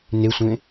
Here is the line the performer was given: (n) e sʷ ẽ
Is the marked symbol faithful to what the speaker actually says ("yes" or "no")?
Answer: yes